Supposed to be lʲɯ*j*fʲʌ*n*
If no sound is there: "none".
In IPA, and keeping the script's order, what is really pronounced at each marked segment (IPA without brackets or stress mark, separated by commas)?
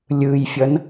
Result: j, n